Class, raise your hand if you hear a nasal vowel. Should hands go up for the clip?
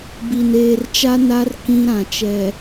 yes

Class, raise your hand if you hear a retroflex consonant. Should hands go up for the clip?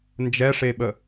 yes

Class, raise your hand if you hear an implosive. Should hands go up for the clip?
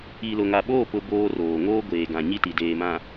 yes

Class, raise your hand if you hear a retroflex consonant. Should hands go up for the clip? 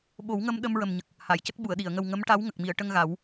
yes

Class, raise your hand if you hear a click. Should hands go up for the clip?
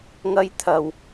no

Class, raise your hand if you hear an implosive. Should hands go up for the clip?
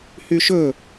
no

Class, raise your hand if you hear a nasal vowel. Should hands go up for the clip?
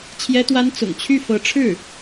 no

